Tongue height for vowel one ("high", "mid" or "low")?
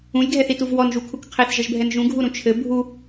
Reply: high